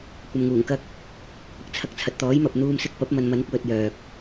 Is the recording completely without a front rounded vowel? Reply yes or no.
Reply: no